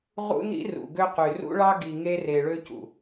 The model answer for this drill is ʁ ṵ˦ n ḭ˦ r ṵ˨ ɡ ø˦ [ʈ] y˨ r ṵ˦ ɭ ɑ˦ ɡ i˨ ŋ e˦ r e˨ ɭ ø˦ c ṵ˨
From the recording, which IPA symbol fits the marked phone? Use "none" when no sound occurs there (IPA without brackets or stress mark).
q